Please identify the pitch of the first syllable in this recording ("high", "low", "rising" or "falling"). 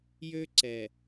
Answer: high